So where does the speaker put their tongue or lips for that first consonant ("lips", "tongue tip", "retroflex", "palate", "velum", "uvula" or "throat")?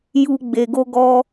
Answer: palate